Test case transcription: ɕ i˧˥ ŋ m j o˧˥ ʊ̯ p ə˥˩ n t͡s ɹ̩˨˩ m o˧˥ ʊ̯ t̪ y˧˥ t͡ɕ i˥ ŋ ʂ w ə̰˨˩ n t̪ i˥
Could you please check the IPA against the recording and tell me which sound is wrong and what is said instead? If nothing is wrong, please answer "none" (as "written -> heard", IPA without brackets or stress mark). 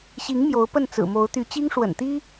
none